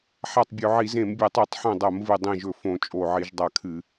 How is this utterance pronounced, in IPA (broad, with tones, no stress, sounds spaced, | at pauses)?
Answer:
ħ a˧˩ tˤ bʲ ɵ˧˩˧ ʕ i˧˩˧ z ẽ˧˩˧ m bʲ e˧˩˧ tˤ u˧˩˧ tˤ ħ õ˧˩ dˤ ɐ˧˩˧ m v ɨ˧˩ dˤ ĩ˧˩ ʒ ɵ˧˩ f õ˧˩˧ t͡ʃʼ o˧˩ ʕ i˧˩˧ ʒ dˤ a˧˩ kʰ ɨ˧˩˧